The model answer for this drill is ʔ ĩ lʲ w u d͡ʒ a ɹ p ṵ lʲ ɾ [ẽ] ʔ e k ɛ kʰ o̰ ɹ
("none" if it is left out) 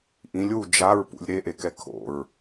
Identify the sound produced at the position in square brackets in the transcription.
e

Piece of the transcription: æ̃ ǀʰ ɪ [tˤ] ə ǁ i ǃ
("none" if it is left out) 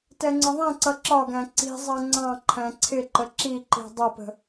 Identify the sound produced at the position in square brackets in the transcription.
ǃ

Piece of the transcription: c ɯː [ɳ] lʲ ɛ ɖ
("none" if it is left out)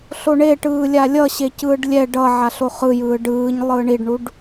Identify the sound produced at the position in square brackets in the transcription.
ɖ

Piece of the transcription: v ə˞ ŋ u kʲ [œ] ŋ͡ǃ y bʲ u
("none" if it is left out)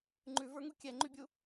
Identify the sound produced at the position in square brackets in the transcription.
ɛ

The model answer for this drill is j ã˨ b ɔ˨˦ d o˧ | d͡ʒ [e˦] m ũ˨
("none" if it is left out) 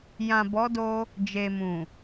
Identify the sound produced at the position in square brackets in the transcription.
e˨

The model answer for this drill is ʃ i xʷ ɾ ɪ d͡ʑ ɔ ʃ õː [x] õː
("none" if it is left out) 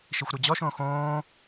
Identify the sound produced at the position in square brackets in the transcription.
x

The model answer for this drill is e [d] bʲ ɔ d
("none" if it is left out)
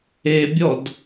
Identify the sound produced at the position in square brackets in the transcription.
none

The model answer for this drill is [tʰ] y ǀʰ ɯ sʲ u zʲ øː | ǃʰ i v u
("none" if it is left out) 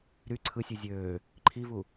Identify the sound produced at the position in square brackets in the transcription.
ɾ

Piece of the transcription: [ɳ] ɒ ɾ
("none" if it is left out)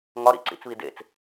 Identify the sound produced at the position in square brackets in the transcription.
ŋ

